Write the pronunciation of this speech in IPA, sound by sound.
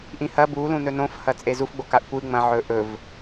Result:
ʔ ĩ h ɐ b u l ũ n ɵ n õ f h ɐ t͡sʼ e z u f ɡ͡b o k a ʔ kʷ ɨ ŋ͡m ɐ̃ ʕ ɵ ʔ ɵ v

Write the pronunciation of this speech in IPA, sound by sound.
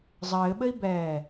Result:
zˤ ɘː ɓ ɘ i̯ b ɛː

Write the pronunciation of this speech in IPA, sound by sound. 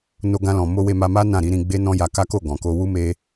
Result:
n o˧ ɡ ã˧ l ɔ̃˨ m o˧ w e˧ m a˧ m a˦ n ã˦˨ ɾ i˨˦ ɾ ĩ˧ ɡ͡b e˦ n ɔ̃˦ j a˧ k a˦ k o˦˨ ɡ ɔ̃˨ k o˧ w u˦ m e˦

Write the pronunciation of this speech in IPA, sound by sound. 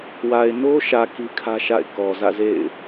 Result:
w a˨ ɪ̯ n o˦ ʃ ä˨ k i˦ kʰ ä˦ ʃ a̰˦˨ ɪ̯ k ɔ˨ z ä̰˦˨ z ḛ˦˨ ɪ̯

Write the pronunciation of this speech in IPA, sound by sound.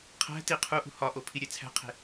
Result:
qʰ æ̤ t i qʰ u ʔ ṳ h ɒ ʔ o pʰ i ɾʲ e t͡sʰ æ̤ qʰ e̤

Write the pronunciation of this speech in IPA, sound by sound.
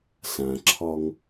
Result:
s ã ǁʰ ɒ ŋ

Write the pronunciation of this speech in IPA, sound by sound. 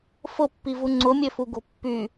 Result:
f ʊ pː i v u ŋ͡ǀ ʊ mʲ ø f u ɡ o̤ pː y

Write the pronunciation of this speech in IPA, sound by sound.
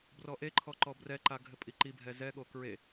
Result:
b r ɔ ʔ e ǃʰ ɔ ǃ ɔ b r ɛ ǃ a ɡʱ ɘ pʼ i ǃ i bʱ ɛ z ɛ ɠ o k ɹ e

